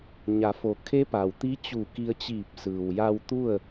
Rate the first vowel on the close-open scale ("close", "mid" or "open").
open